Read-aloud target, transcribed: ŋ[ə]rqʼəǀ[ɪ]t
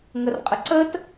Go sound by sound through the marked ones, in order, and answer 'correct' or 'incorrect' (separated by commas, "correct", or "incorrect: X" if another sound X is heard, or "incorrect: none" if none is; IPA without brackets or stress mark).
correct, incorrect: ə